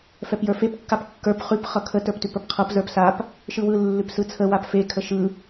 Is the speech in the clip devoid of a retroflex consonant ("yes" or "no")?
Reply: yes